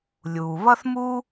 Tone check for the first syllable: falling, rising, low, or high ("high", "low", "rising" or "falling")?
low